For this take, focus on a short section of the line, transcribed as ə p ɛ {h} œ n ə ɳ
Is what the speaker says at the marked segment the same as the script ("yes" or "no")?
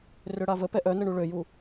no